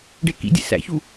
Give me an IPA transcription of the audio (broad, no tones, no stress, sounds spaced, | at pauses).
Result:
ɖ e k ḭ dʲ ḛ s æ̰ ç u